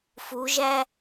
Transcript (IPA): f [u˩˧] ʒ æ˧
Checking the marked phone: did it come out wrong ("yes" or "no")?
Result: no